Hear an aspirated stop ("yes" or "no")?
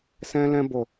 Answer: no